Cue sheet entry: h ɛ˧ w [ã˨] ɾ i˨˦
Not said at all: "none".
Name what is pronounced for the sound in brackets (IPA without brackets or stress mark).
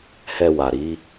a˨